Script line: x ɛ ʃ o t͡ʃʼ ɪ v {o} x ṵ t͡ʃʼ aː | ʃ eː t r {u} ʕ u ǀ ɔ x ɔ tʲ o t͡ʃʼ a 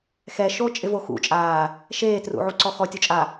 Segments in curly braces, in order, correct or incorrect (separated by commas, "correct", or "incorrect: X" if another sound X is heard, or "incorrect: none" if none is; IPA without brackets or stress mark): correct, incorrect: ṵ